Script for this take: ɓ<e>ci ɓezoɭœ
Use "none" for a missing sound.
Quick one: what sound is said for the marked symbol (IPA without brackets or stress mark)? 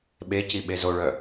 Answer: e